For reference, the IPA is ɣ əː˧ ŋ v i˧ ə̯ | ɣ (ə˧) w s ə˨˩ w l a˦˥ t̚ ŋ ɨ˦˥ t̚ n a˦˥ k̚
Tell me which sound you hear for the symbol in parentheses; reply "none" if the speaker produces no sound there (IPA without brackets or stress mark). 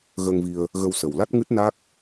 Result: ə˧